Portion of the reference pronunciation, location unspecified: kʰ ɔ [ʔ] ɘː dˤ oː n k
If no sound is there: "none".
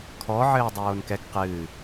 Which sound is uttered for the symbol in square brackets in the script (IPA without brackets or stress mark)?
ʕ